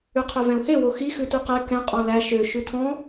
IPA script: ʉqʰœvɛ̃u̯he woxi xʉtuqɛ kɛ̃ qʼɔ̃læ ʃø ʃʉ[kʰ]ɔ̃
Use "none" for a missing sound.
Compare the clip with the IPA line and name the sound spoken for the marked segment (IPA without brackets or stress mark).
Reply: tʰ